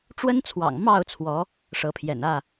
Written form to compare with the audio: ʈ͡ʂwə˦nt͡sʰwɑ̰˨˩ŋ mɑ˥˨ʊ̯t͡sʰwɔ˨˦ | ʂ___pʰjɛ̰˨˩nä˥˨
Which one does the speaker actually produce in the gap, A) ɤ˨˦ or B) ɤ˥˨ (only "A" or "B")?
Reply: A